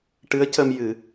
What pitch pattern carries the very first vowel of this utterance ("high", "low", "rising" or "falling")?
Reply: rising